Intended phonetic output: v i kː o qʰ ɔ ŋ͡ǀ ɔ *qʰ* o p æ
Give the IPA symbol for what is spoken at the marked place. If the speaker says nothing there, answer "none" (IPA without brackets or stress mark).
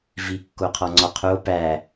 qʰ